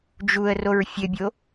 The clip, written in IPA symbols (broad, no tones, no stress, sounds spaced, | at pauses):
d͡ʒ u ə̯ r o ɹ fʲ ɘ bʲ o